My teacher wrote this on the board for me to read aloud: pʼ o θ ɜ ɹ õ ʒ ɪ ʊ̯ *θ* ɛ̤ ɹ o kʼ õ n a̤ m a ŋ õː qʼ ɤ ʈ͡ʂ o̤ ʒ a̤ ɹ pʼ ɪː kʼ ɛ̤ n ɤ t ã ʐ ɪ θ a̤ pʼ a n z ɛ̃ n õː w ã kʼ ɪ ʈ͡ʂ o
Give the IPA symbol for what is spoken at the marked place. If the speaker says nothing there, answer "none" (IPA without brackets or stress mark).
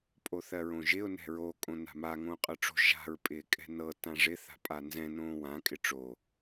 n